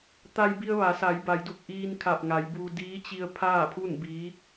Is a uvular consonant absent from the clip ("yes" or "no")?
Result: yes